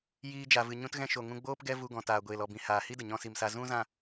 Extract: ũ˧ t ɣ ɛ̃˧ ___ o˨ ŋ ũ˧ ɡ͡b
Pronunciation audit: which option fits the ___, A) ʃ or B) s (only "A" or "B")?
A